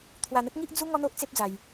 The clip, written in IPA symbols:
t̪ʰ w a˧ n̪ ə˦ t̚ ŋ i˦ ʔ d͡z u˦ ŋ ɔ˦ n̪ o˦ ʔ t͡s e˦ p̚ d͡z a˧ j

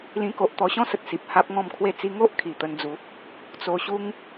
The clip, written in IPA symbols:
l ĩ˧ k o˨ ʔ t̪ ɔ˧ ɕ ɔ̃˦ s ə˨ t̚ s i˨ p̚ h a˦ p̚ ŋ ɔ̃˥˧ m kʰ w e˥˧ t͡s i˧ ŋ o˦ ʔ kʰ i˨˩ t̪ ə˧ n d͡z u˨˦ | t͡s o˧ ɕ u˦ ŋ

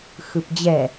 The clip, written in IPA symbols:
x ɯ p d͡ʑ ɛ

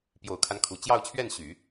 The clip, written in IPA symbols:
p j o˨˩ ʊ̯ kʰ a˦ n kʰ u˨˩ t͡ɕ j ɑ˥˧ ʊ̯ t͡ɕʰ ɥ ɛ˥˩ n ɕ y˨˩˦

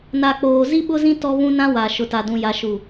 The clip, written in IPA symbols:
n a˨ k͡p oː˨ z i˦ ɓ ʊ˦ z ĩ˦ t ɔ˦ β ũ˦ n ã˦ w a˨ ʃ ʊ˨ t a˨ d ũ˨ j a˨ ʃ u˨

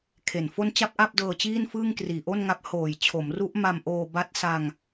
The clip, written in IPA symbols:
kʰ e˨˩ n f o˥˩ n t͡ɕ a˥˩ p̚ ʔ a˥˩ p̚ d ɤː˧ t͡ɕ iː˥˩ n f ɯː˥˩ ŋ k r iː˨˩ ʔ o˥˩ n ŋ a˦˥ p̚ h oː˨˩ j t͡ɕʰ o˩˦ m r u˦˥ ʔ m a˧ m ʔ oː˧ b a˦˥ t̚ s a˧ ŋ

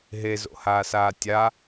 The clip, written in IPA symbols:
ɦ e z o̰ h aː s aː tʲ a

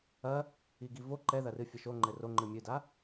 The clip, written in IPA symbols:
ɐ | i ɡ i v o ǃ ɛ ð ɐ r ɨ fʲ ɐ ʃ o ŋ͡ǃ ɘ r o ŋ͡ǃ ɨ mʲ ɨ d a

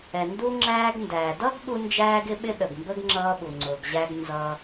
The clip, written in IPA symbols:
ɛ˩ n d u˥ ŋ͡ǁ æː˥ ɡ n d æ˩ d ʌ˥ ɡ ɓ u˥ n d͡ʒ æː˥ ɡ ɪ˥ ɓ ɪ˥ ɗ ə˩ ɡ m b ə˥ ɡ ŋ͡ǁ ʌː˥ ɓ u˩ ŋ͡ǀ ʊː˩ ɡ ʑ æ˥ ɡ n z ʌː˥

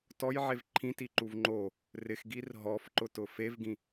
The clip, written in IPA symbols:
t ɔ j ʕ e v ǃʰ ĩ t i ǃ u v ŋ͡ǃ o | r ɪ x ɡ i r ɦ ɔ f ǃ ʊ t ʊ f e v ɡ ĩ

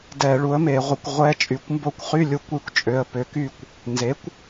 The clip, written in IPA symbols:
d ɛ˧˩˧ ɭ u˩˥ ə̯ m e˧˩˧ ʁʷ ə˧˩˧ kʷ ʁʷ ɛ˧˥˧ t͡ʃʼ y˩˧ kʷ m b o˦˨ kʷ χ y˧˥˧ lʲ u˧˩˧ kʷ y˦˨ kʷ t͡ʃʼ ø˩˧˩ ə̯ p ø˩˥ k y˦˨ kʷ | n z e˩˥ kʷ

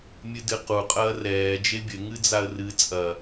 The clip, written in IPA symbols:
mʲ ɨ d ɨ q u qʼ ɐː r ɛː d͡ʒ e bʲ ɘ ŋ ɨ d͡z a ə̯ r ɨ t͡sʼ ɐ

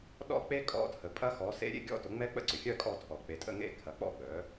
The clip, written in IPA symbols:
ɗ ɔ̰˦˥ k͡p e˦˥ kʼ ɔ̰˧˥˧ tʰ ə˩˧ pʼ ɐ˦˥ x ɔ˩˥ s ḛ˦˥ ɾʲ ḛ˧˥˧ ɡʲ ɔ̰˦˥ t ʊ˩˥ ŋ͡m ɛ˦˥ k͡p ə̰˥˨ ǀ ʏ˩ xʲ œ˥˨ kʼ ɔ˥˨ tʰ ɔ˩ k͡p e˩˧ tʼ ə̰˥˨ ŋ ḛ˥˨ kʰ ɐ˩˥ k͡p ɔ̰˥˨ ɡ͡b œ˩˥

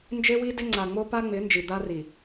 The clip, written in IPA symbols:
n d͡ʒ e˦ w i˦ d ɪ˦ ŋ͡ǀ a˨ ŋ͡m o˦ p a˦ ŋ͡m ɪ˨˦ n d͡ʒ i˨ d̪ a˦ r i˨

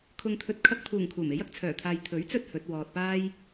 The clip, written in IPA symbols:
kʰ ʊ˨ ŋ t̪ʰ ɵ˨ t̚ kʰ ɐ˧ k̚ pʰ uː˨˩ ŋ kʰ uː˨˩ m e˨˥ j ɐ˨˥ k̚ t͡sʰ œː˨˩ t̪ʰ aː˨ j t̪ʰ ɵ˨˥ ɥ t͡s ɵ˥ t̚ h ɵ˨˥ t̚ w ɔː˧ t̚ p aː˥ j

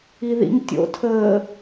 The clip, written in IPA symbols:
i ð ḭ ŋ tʲ o̰ tʰ əː

